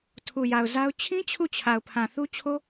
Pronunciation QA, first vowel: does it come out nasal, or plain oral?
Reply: oral